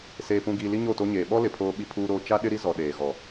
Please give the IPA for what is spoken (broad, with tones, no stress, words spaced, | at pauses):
seː˨pũ˨ɡiː˨ li˦ɲo˦˨to˦ɲeː˨ ɓɔ˦ lɪ˨pʰoː˦ ɓi˦pʰuː˦ɾoː˦ t͡ʃa˦ ɗɪ˦ɾi˦ zɔ˨ ɗeː˨ɣɔ˨